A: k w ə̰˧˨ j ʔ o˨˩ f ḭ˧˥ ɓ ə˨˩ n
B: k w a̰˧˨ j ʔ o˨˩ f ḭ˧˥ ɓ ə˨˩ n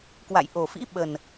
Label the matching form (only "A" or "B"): B